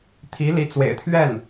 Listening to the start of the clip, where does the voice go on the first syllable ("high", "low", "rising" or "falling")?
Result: rising